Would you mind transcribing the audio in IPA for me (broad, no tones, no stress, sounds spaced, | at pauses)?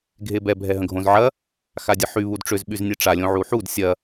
ɡʱ e b ɛ bʱ ɛ ɦ ə̃ ɡʱ õ z ʕ ɐ | x a dʲ ə ħ y β u d ʈ͡ʂ ʏ z ɓ y z nʲ e ʈ͡ʂ a lʲ õ ʕ u ħ u d sʲ ɐ